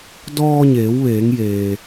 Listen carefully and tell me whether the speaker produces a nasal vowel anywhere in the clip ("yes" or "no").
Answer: no